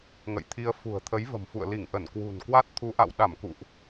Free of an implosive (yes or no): no